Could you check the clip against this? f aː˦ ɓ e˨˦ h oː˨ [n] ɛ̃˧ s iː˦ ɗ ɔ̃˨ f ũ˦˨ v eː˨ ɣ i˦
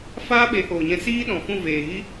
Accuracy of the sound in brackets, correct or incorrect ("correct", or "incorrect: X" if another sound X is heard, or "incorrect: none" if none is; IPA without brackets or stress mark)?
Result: incorrect: ɲ